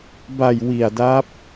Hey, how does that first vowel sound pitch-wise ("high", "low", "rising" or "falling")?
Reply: low